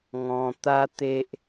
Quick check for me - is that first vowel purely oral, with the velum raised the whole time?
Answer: no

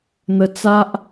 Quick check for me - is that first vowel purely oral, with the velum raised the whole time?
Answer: yes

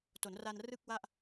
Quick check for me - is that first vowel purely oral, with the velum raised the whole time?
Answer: yes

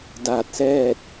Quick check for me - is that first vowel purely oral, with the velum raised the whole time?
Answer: yes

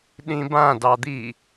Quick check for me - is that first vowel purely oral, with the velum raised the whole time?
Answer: no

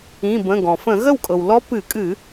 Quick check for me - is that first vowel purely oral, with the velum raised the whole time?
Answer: no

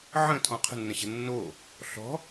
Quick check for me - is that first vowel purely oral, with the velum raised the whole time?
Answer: no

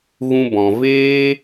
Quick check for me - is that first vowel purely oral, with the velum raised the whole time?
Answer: no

